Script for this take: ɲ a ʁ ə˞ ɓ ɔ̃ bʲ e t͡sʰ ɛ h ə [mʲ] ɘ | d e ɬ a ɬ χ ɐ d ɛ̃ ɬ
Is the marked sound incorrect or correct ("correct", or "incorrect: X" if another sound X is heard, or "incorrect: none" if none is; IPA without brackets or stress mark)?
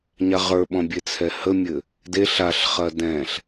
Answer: correct